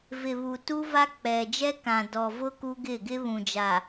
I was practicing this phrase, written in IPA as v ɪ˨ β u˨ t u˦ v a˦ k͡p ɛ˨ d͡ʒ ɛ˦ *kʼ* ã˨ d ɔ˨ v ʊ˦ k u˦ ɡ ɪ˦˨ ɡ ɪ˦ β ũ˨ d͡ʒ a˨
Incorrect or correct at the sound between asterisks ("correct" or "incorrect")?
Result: incorrect